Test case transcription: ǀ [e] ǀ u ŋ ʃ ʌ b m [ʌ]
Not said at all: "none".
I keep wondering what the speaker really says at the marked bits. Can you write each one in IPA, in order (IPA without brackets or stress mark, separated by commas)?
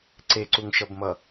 e, ʌ